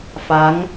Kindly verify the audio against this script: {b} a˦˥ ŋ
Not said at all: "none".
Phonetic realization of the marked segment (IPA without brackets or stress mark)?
f